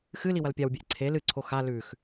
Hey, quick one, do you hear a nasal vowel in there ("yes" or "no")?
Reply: no